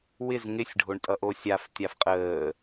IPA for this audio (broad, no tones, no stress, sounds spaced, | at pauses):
w ɪ z ŋ ɪ sʲ ɖʱ o ɳ tʼ ʌ ʔ o sʲ a f tʲ a f qʼ əː